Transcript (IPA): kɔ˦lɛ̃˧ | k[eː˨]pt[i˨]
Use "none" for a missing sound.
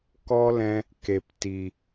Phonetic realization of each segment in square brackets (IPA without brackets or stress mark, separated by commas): e˨, i˨